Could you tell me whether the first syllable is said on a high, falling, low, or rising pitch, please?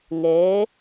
rising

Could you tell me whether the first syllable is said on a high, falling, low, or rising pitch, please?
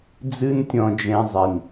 high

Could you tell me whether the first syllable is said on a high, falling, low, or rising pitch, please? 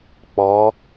rising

